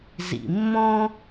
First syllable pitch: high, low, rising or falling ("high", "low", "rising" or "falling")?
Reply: low